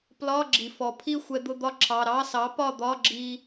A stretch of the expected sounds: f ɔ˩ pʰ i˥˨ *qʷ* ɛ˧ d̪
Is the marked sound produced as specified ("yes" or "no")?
no